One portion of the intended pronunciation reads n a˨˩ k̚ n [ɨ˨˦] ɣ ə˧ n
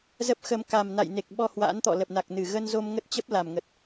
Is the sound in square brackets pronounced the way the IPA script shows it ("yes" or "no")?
no